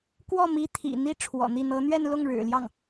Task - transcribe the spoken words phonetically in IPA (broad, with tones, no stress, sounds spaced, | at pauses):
k w ɔ˥˩ m i˧˥ t̪ʰ ḭ˨˩ n̪ i˥ ʈ͡ʂʰ w ɔ̰˨˩ n̪ i˥˩ n̪ ɤ˧˥ n̪ ɥ ɛ˥˧ n l ʊ˥˩ ŋ ɻ ɻ̩˨˩ l j ɑ˥˩ ŋ